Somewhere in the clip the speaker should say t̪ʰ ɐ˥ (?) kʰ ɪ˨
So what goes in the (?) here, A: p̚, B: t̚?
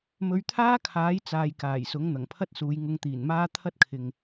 B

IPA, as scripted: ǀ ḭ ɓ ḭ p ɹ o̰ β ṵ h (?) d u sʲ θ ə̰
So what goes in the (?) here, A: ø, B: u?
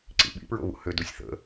A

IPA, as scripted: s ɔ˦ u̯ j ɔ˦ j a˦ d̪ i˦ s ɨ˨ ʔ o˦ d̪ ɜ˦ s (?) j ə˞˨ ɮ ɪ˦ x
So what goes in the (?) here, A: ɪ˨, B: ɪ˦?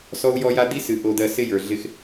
B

